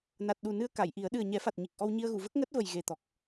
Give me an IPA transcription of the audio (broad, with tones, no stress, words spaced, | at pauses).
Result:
na˨˩t̚ɗu˨˩nɨ˧ə̯ ka˨˩˨jʔi˨˩˦ə̯ ɗɨ˨˩ə̯ɲɛ˨˩˦fa˨˩t̚ ɲi˨˩k̚ʔɔ˧wɲi˧ə̯ɣu˨˩˨ və˦˥k̚ŋəː˦˥t̚və˨˩j ɣe˨˩t̪ɔ˨˩k̚